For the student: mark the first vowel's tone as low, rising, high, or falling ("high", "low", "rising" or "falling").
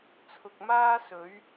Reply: low